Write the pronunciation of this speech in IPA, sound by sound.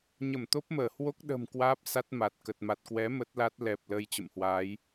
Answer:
ɲ ə˧˩ m t̪ o˦˥ p̚ m əː˧˩ h w o˦˥ k̚ ɗ ə̤ː˨˩ m k w aː˦˥ p̚ s a˦˥ t̚ m a˨˩ t̚ k ə˨˩ t̚ m a˨˩ t̚ k w ɛ˨˦ m ə˦˥ t̚ l a˦˥ t̚ l ɛ˨˩ p̚ l əː˧ j t͡ɕ ə̰˧˨ m h w aː˨˦ j

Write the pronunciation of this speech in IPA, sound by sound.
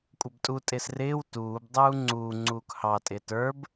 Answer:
kʷʼ ə b tʼ u tʼ ɪː s r ɪː w t uː b dˤ uː ŋ͡ǀ uː ŋ͡ǀ uː k h ɑ tʼ ɪː t ə˞ b

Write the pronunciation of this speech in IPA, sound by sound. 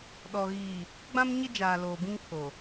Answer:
ɗ ɔ˨ ɣ iː˨ | ɡ͡b ã˦ m ɲ ɪ˦ d͡ʒ aː˨ l oː˨ b ĩ˦ ŋ kʰ o˨

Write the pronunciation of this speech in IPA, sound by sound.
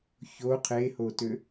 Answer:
ç o qʰ e h o t ø

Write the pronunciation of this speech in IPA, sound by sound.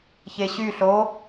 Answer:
ç e ɕ y ɬ o

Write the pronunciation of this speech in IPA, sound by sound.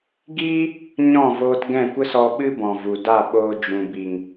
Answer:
ɡ iː˦ | ɲ ɔ̃˦˨ v oː˧ t ɡ ɛ̃˦˨ kʷ ə˦ s ɔ˧ ɓ ɨ˦ b ɔ̃˨ v u˨ d a˦˨ ɓ oː˧ d͡ʒ ũ˨ b i˨ ŋ

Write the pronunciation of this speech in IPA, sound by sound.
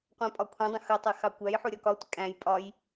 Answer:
qʷ æ̃ pʼ ɒ kʷʰ ə̃ dˤ ə̃ x ə tˤ ɛ x ɑ kʷ æ j ħ u ɾʲ ɒ k ɒ tʷ ɪ kʼ æ̃ j pʼ ɒ j

